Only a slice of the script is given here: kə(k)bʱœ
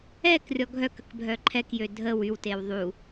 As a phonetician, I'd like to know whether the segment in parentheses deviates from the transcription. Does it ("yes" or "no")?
no